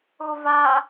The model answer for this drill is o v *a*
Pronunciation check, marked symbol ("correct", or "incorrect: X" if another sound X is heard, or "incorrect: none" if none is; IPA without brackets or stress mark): correct